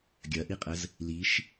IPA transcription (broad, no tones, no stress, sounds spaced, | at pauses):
ɡʲ ɐ ʔ i qʼ ə z | l i ʃ